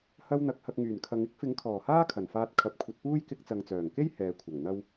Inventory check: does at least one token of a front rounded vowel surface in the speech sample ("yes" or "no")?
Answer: yes